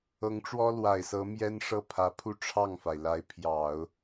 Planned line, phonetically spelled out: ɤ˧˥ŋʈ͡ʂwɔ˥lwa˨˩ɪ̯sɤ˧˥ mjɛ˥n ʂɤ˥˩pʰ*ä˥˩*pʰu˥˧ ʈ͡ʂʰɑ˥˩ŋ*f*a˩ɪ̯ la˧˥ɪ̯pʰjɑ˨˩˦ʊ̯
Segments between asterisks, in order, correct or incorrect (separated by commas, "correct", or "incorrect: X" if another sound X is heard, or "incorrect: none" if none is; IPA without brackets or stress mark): incorrect: ä˧˥, correct